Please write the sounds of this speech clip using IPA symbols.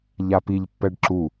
ʎ a p i ʎ pː ɛ ɖ ǁ u

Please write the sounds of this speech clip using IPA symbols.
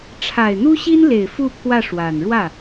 ʈ͡ʂʰ a˨˩ ɪ̯ n̪ u˥ ɕ i˥ n l e˨˩ ɪ̯ f u˥˧ pʰ w ä˥˩ ʂ w a˨˩ n ɻ w ä˥˩

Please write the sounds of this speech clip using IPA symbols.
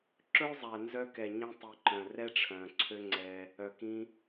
ǁ ɵː˦ zˤ æ˨ n z œ˧ k ɛ˨ ɲ ĩ˧ tˤ i˨ ǃ œ̃˨ r ɛ˦ ʈ͡ʂʰ œ̃ː˨ ǀʰ ø˦ ŋ͡ǀ ɛ˧ | œ˨ k ĩ˧

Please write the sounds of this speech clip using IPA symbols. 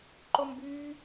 ǃ o m b yː

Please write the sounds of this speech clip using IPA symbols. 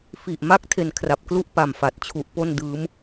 f i˨˩ ʔ m a˥˩ k̚ tʰ e˧ n kʰ r a˨˩ p̚ k l u˥˩ ʔ p a˨˩ m f a˨˩ t̚ t͡ɕʰ u˨˩ ʔ p o˥˩ n d ɯː˦˥ m

